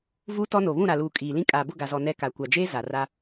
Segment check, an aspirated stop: absent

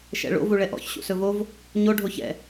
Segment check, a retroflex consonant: present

